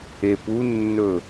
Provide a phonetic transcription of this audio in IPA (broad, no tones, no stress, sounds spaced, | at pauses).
e p u nː ɵ